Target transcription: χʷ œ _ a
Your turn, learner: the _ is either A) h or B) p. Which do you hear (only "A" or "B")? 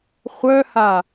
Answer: A